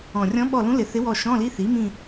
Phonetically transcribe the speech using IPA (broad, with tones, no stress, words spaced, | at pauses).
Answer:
ɔ̃˨˩ rʲɔ̃˧˥ɓɔ˦˨lũ˧˥lɪ˨˩˦ θɪ˧˥wɔ˦˨ ʃɔ̃˧˥˧li˧˥˧θi˩˥mĩ˦˨